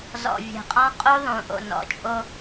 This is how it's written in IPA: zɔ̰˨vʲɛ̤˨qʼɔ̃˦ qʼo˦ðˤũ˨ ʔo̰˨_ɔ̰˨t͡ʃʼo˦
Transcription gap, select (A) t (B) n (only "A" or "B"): B